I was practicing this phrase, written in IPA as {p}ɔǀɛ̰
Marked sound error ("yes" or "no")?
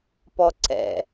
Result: no